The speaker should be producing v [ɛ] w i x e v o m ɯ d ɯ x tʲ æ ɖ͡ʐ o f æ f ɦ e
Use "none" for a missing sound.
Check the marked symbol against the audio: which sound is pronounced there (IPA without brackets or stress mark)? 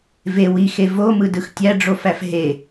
e